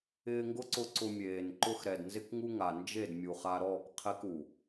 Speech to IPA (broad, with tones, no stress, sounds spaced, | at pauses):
ɪː˧ ŋ ɡ ʊ˦ ǀ ʊ˧ ǀ ʊ˧ mʲ eː˨ n ǃ ʊ˦ x ɾ ɛ˨ d n z ɪ˦ k ŋ u˦ ŋ a˨ n d͡ʒ e˦˨ d mʲ u˨ χ a˧ ɾ ɔː˦˨ k qʰ ɛ˦ k u˨